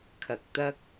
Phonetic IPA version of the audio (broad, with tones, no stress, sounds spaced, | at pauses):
kʰ ɐ˨ k̚ t̪ ɐ˥ k̚